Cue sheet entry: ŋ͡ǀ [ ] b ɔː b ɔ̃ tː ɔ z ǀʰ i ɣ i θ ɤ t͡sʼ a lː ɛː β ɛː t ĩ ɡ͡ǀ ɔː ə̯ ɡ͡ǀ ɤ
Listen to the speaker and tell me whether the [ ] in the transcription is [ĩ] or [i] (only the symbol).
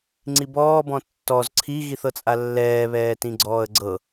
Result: i